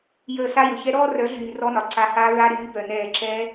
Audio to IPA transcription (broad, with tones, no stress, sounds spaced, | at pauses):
j əː˧˩˧ s a˧˥˧ j ɵ˩ ç ɛ˧˥ ɾ ɔː˥˧ r œ˩˥ ɮ yː˩ r ɔ˧˥˧ n ɒ˩ ǀ a˩˥ h aː˧˥ ɹ a˧˥˧ ɾ yː˩˥ b œ˩ n ɛː˧˩˧ ǁ ɛ˧˥